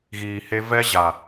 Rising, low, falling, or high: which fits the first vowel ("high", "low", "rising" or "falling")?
low